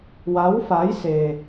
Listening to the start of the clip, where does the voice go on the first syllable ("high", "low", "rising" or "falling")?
rising